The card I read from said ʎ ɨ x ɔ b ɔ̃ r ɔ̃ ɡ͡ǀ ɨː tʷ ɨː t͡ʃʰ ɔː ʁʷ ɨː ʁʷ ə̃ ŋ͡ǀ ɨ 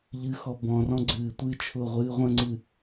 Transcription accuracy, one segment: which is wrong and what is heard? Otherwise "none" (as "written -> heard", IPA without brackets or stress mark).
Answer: ɔː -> ʊː